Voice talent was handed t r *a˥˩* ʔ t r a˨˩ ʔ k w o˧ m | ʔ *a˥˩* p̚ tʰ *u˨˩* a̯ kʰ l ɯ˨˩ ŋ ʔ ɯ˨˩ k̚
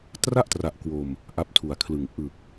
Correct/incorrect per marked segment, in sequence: correct, incorrect: a˦˥, correct

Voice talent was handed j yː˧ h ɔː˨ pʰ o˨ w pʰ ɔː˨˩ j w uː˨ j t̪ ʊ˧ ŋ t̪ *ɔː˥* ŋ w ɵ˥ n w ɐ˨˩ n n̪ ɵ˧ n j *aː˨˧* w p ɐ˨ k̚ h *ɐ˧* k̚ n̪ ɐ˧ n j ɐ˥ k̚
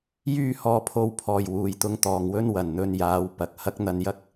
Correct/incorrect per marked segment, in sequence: incorrect: ɔː˨, correct, incorrect: ɐ˥

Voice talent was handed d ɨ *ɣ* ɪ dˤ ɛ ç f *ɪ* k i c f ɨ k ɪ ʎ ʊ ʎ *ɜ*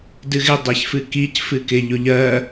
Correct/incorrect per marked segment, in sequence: correct, incorrect: ɨ, correct

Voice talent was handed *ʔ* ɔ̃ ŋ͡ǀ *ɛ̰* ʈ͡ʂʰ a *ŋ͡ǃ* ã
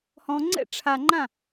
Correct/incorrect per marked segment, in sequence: incorrect: h, correct, correct

